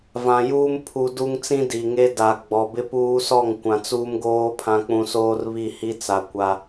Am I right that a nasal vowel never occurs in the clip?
no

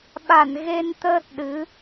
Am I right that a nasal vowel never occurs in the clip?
yes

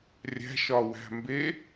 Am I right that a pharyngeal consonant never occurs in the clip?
yes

